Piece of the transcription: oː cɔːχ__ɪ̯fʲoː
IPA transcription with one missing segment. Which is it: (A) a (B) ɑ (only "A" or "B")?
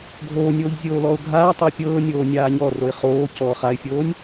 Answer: A